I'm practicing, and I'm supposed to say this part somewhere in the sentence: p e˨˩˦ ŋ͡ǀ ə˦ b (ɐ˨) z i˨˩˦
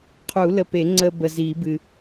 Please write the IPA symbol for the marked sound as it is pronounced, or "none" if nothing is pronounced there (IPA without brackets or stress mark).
ə˨